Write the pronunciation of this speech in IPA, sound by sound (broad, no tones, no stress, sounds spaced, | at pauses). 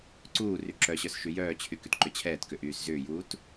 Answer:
ǀ uː r y ǁ œ ɕ œ s ʃ y j œː t͡ɕʰ y k y t ǃ ʏ t͡ɕʰ ɛː t k ʏ ʔ yː s z ʏː j uː t